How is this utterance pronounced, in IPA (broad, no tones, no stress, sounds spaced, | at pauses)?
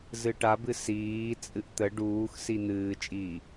z ɨ ʈ a b ɨ s iː t͡sʼ ɨ ʔ t̪ ə ɖ uː x s i n̪ ɨː t͡ʃʼ iː